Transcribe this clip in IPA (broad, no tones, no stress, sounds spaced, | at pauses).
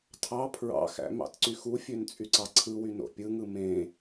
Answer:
tʰ ɑ pʰ ɹ ɑ̰ x æ̰ m ɑ̰ t ǀ y x u fʲ ø n t͡sʼ y ǀ ɑ ǀʰ ɯ w y n o̰ pʲ ɯ ŋ ɯ m ẽ